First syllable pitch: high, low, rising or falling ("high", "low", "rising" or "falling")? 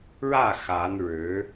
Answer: falling